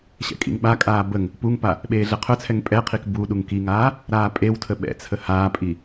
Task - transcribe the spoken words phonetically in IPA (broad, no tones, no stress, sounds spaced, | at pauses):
ɕ ɛ̰ kʼ ḭ ŋ ɓ a kʼ aː b ə ŋ | p u ŋ p a | ɓ eː ɮ ɛ qʰ œ t͡sʰ ɛ ŋ pʼ ɛ qʰ i k b u ɗ u ŋ k i ŋ aː | ɾ aː pʼ e w tʰ ə ɓ ɛ̰ t͡sʰ ə h aː pʼ i